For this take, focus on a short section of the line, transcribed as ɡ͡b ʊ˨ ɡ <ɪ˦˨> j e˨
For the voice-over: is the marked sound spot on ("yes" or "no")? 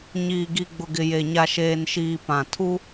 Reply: no